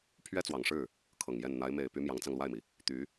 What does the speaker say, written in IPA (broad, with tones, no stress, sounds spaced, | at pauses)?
pʰ ɥ ɛ˥ t͡s w ɑ˨˩ ŋ ʂ ɻ̩˥˩ | kʰ ɤ˨˩ ŋ j ɛ˥˩ n n̪ a˧˥ ɪ̯ m e˨˩ ɪ̯ p y˧˥ m j ɑ˧˥ ŋ t͡s ɑ˧ ŋ l w a˥˩ ɪ̯ m i˩ | t̪ y˧˥